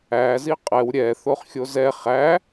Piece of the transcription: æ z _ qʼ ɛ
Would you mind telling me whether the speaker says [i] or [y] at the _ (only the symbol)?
i